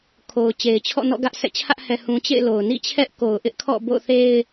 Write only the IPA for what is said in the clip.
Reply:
kʰo˨ʊ̯t͡ɕe˨ɪ̯t͡ɕʰɔ̰˦˨ nɔ̰˦˨ɡä˦ʔ sʰɛ̰˦˨t͡ɕʰä˦ʔ hɛ˨hũ˨ t͡ɕḛ˦˨ɪ̯lo˨ʊ̯nḭ˦˨ t͡ɕʰɛ˦ʔko˨ʊ̯ʔɪ˦ʔkʰɔ̰˦˨ bo̰˦˨ʊ̯θe˦ɪ̯

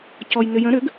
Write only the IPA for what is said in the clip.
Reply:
cɔjnʏjə̃ ɾʏɡ

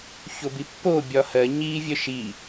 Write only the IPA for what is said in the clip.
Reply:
çobipːo bʲɒhɜ ɲi vʲœʃi

